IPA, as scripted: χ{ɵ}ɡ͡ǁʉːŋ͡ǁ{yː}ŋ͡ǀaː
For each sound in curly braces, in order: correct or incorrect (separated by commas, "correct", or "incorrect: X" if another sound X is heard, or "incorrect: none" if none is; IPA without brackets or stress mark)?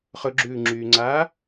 correct, correct